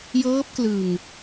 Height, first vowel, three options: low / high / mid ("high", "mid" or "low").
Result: mid